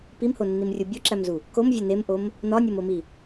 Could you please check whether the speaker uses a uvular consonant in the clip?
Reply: no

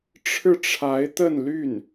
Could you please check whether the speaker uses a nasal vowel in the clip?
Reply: no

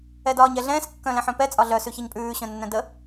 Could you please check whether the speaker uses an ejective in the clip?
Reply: yes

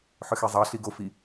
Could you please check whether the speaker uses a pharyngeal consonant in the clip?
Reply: yes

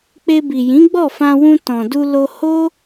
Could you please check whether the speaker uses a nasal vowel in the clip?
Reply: yes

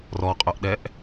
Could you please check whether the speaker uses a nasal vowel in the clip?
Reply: no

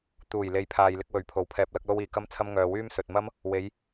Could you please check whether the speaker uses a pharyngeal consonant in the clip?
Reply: no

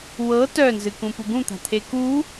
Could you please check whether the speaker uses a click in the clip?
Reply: no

